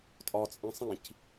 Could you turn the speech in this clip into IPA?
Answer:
tʼ ɒ t͡sʼ ẽ sˤ ĩ c

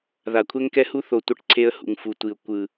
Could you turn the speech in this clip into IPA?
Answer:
ð a˨ kʷʰ ɛ˦ ŋ k ɛ˦ h u˦ θ o˨ tʷ ʌ˦ ʈ ǀʰ e˦ ə̯ h ṵ˨ ŋ f u˨ tʷ i˨ ʊ̯ kʷ ɯ˨

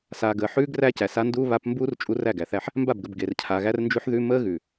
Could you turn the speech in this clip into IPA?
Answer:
s aː˨ ɡ əː˨ ħ ʉː˦ ɡ r æ˦ c æ˨ s a˦ n d uː˦ β a˦ p m b uː˦ r t͡ʃʼ u˦ r æ˦˨ ɡ æ˨ θ æ˦ ħ | m b a˦˨ b ɡ ə˨ b ɡ e˨ r cʰ a˨ ɣ æ˦ r n d͡ʒ ʉ˦ ħ ð ʉ˦ m əː˦ ɣ ʉ˨

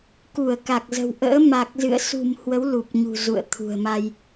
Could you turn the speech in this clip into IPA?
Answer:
k u˧˩ ə̯ k a˨˩ k̚ z ə̤˨˩ w ʔ ə̰ː˧˥ m a˨˩ k̚ z ɨ̰˧˨ ə̯ s ṳ˨˩ m h w ə˨˦ w l u˨˩ p̚ ɲ ṳ˨˩ z ṵ˧˨ ə̯ t̪ʰ ṳ˨˩ ə̯ m a˧ j

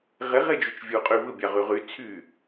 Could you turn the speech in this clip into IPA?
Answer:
ʁ e ʁ e d͡ʒ u t͡ʃ vʲ u qʼ y β ɯ bʲ ɑ ʁ y ʁ y t͡sʰ y

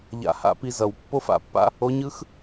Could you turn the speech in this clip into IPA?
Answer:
ʎ a̰˧ h a̰˧˥ p i˧ z ʌ˩ w pː o˥ f a̰˩˧ pː a̰˥ | o˧˥ ɲ ɯ˧˥ x

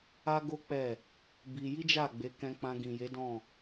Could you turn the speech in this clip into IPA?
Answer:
a˦ ɡ o˦ k͡p ɛ˦˨ | b i˧ j i˦ d͡ʒ a˦˨ ɡ͡b e˨˦ k ɛ̃˧ k͡p ã˧ ɡ ĩ˨ j e˨˦ d ɔ̃˦˨

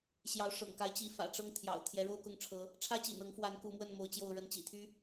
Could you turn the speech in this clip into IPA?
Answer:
ɕ j ɑ˨˦ ʊ̯ ʂ ɤ̰˨˩ ŋ k a˨˦ ɪ̯ t͡ɕ i˨˦ f ä̰˨˩ ʈ͡ʂ ɤ˥˨ ŋ t̪ʰ j ɑ̰˨˩ ʊ̯ t̪ʰ j ɛ˨˦ ɻ o˥˨ ʊ̯ k ʊ˥˨ ŋ ʈ͡ʂʰ ɤ˨˦ | ʈ͡ʂʰ ä˦ t͡ɕ ḭ˨˩ n ɤ˨˦ ŋ f w a˨˦ n k u˨˦ m w ə˥˨ n m o˨˦ ʊ̯ t͡ɕ j o˥˨ ʊ̯ ɻ ə˥˨ n t͡ɕ ḭ˨˩ t̪ʰ y˦

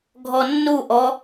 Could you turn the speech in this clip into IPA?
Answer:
ɡʱ ɔ nː u ʔ ɔ

